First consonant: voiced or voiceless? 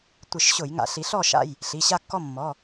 voiceless